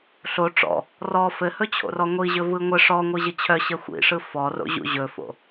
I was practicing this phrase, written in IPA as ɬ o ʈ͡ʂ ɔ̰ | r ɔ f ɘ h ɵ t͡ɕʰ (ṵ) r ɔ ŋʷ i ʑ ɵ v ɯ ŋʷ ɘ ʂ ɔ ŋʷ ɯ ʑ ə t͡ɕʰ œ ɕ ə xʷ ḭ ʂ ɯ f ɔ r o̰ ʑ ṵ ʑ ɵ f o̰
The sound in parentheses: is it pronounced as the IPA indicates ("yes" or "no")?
no